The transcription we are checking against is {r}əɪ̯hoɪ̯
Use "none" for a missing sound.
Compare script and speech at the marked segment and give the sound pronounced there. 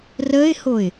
r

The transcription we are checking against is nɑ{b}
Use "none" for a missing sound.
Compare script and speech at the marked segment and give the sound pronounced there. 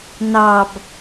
b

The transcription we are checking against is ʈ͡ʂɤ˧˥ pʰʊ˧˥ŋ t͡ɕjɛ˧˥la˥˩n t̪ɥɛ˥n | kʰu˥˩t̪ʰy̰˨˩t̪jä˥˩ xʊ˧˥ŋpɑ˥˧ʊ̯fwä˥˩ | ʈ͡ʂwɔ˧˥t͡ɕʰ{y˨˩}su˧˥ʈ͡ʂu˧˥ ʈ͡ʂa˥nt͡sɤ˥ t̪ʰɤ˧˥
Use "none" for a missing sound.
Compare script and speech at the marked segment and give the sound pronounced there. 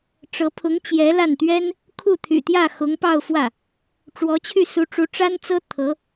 y˥˩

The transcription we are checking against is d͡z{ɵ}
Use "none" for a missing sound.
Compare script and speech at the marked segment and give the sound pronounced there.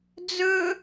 ɵ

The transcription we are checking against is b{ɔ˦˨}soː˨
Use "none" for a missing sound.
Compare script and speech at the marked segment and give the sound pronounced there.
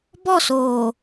ɔ˦˨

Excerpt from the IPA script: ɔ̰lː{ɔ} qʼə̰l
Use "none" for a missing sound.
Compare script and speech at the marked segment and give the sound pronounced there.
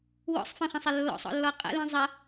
ɔ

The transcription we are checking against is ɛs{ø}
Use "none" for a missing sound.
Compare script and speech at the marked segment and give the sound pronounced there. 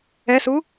u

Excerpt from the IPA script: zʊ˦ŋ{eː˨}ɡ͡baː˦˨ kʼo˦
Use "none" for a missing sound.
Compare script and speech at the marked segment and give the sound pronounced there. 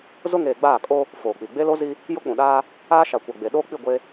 eː˨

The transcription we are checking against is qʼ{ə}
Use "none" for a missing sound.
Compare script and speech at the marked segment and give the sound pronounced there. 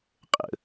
ə̰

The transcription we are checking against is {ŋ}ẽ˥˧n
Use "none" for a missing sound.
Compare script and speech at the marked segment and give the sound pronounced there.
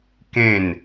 k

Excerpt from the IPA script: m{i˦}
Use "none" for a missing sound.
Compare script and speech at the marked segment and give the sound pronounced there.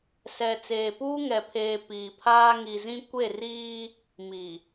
i˨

